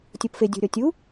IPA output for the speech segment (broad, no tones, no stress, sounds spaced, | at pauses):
tʲ o p f e dʲ o̤ ɾʲ ɔ tʲ u